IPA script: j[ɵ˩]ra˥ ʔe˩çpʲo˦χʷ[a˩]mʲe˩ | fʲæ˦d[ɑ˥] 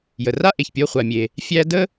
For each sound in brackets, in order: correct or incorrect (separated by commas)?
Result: incorrect, correct, incorrect